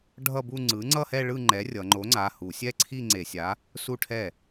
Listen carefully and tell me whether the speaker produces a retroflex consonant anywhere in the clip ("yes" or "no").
yes